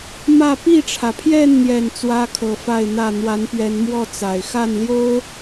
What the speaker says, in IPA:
m ä˥˨ p i˥˨ ʈ͡ʂʰ ä˩ pʰ j ɛ˥˨ n n̪ j ɛ˨˩ n t͡s w ä˦ kʰ ɤ˨˩ f a˥˨ ɪ̯ n̪ ä˥˨ n̪ w a˨˦ n p ɥ ɛ˨˦ n m w ɔ˥˨ t͡s a˨˩ ɪ̯ x a˥˨ n l j o˦ ʊ̯

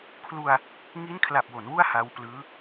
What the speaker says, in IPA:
kʰ l u˧ a̯ | ŋ i˦˥ n kʰ l a˨˩ p̚ w o˩˦ n w u˥˩ a̯ h a˦˥ w p l ɯː˦˥

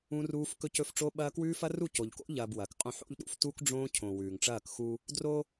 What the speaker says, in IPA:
ũ˦ r uː˦ f k ɵ˦ c ɵ˦ f ʈ͡ʂ o˦ ɓ ɐː˦ k w ʉː˦ f ɐ˦ r u˦˨ c o˨ ʎ k o̰˦ ʎ ɐː˨ b w ɐ˨ k qʼ õ˦ ħ o̰˦ ʎ ɗ ṵ˦ f t u˦ k ɖ͡ʐ õː˦ cʰ õ˨ w ʉː˨ ŋ ʈ͡ʂ ɐː˦˨ k x u˦ | d r o˦

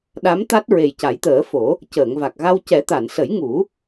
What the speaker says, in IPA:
ɗ a˧˥ m t̪ a˦˥ t̚ ɹ e˨˩ j c a˨˩˦ j t̪ əː˨˩˦ f o˨˩˦ | c əː˨˩˨ ŋ v a˨˩ k̚ ɣ a˧ w c ɛ˨˩˦ t̪ a˨˩˨ n s ə˨˩˦ j ŋ u˨˩˦

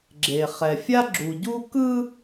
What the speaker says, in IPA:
ɡ͡ǁ e˨ χ ɛ˨ fʲ a˦ ɡ͡ǁ u˨ ɟ u˦ k ɯ˦

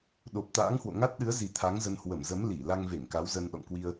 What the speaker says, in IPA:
ɗ o˨˩ p̚ t̪ a̰ː˧˥ ŋ h w o̰˧˨ ŋ a˦˥ t̚ ɗ ɨ˨˦ ə̯ z i˨˩ t̪ʰ a˨˦ ŋ z ə˧ n h w ə˧˩ m z ə˨˦ m l i˧˩ l a˧ ŋ v e˧˩ ŋ k a˨˦ w z ə˧ n ɗ ɔ̰˧˨ ŋ k w i˧ ə̯

